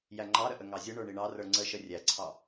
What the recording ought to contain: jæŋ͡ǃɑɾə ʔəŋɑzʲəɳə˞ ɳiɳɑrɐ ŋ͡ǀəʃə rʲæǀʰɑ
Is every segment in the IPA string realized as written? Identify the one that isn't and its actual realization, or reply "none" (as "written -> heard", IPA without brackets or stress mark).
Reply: ɐ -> ə˞